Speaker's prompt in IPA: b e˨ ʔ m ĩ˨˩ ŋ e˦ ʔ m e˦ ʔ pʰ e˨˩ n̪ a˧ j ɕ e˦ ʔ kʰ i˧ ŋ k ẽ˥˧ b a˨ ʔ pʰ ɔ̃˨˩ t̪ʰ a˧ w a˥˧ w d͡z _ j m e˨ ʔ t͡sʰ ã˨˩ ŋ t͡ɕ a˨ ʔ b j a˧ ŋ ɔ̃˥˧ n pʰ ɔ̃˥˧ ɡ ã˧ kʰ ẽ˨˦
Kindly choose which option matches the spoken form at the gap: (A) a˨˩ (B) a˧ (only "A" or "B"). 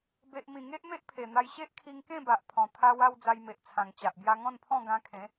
B